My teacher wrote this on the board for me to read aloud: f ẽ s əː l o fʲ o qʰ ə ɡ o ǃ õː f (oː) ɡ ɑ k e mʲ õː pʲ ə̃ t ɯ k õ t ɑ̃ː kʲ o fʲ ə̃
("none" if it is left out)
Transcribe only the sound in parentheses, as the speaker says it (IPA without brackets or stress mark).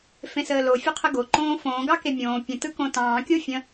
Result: õː